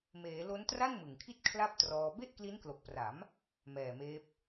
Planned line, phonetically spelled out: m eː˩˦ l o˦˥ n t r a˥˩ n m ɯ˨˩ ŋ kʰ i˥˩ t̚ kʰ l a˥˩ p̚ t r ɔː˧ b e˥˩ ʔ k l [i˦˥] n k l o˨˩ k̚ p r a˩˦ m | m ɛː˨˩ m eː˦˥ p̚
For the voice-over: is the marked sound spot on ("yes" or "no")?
yes